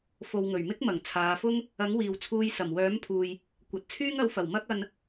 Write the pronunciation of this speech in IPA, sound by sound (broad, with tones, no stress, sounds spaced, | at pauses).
f o˨ w ŋ ɵ˨˩ ɥ m ɪ˥ k̚ m ɐ˨˩ ŋ t͡sʰ aː˨˧ f ʊ˥ ŋ | ɐ˨˥ ŋ w iː˨ w t͡sʰ uː˧ j s ɐ˨˩ m w œː˨˥ m pʰ uː˨ j | kʷ ɐ˨ t̚ t͡sʰ yː˥ ŋ ɐ˨˥ w f ɐ˨˩ w m ɐ˥ k̚ ɐ˧ n